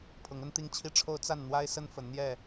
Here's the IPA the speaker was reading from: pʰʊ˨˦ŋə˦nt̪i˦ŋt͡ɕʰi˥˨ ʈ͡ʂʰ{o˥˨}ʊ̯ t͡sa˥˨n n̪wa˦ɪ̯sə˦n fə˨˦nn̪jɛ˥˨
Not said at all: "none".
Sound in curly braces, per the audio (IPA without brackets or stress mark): o˦